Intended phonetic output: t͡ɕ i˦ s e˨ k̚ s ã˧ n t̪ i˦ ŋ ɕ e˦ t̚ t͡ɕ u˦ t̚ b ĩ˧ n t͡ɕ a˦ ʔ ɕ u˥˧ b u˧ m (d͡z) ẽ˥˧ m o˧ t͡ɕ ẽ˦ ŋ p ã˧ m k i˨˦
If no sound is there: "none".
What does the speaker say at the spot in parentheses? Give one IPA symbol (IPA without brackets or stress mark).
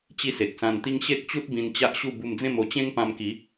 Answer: d͡z